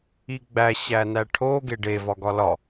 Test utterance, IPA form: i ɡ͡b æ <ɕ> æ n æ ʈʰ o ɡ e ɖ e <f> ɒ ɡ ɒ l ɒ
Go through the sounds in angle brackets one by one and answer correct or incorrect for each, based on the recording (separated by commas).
correct, incorrect